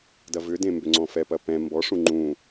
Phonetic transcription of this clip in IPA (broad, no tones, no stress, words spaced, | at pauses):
dɐvʏdẽ mbʏŋ͡ǀɔ̃fɛpɐ pɛ̃ mbɔʂũ ŋ͡ǃũ